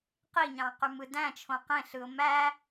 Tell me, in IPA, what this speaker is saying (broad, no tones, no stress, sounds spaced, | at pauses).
q i ɲ ɑ̃ q y m ɯ d æ̃ t͡ʃʰ õ q ẽ ɬ ɯ ʊ̯ m æ